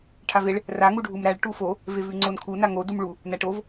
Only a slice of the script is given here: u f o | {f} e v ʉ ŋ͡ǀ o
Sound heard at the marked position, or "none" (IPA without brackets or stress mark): v